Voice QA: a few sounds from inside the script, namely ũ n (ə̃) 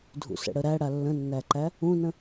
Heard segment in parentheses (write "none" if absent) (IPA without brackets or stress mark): ə̃